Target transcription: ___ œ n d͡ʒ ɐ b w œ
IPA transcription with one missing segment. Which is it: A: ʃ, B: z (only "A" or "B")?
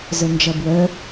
B